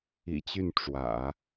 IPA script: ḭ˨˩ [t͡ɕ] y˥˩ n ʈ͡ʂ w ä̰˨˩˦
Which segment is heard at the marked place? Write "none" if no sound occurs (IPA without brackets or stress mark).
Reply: t͡ɕ